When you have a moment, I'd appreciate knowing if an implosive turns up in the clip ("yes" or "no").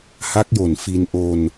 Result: no